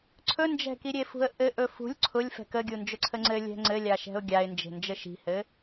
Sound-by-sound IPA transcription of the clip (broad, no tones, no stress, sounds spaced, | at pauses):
ǀʰ ɵ n d͡ʒ ɛ̤ k i ɾʲ e f ṳ ə̯ ʔ ɘ ʔ ɵ f ṳ lʲ ǀʰ ʊ lʲ f ɛ̤ k ə ɡʲ u n d͡ʒ ɵ ǀʰ ə ŋ͡ǀ ɘ lʲ ɛ̤ ŋ͡ǀ ɘ lʲ a ʃ ɛ̤ ʊ̯ ɡʲ a ɪ̯ n d͡ʒ e̤ n d͡ʒ ɘ ʃ i̤ h ɘ